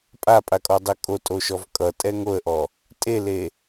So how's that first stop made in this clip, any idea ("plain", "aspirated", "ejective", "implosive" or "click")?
ejective